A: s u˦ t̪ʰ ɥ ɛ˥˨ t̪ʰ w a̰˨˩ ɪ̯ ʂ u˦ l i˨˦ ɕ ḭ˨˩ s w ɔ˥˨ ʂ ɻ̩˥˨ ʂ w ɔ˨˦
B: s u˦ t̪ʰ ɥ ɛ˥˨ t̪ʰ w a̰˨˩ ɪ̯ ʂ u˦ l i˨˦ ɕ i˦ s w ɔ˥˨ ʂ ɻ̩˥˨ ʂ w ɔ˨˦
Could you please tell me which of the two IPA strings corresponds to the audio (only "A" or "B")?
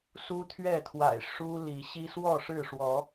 B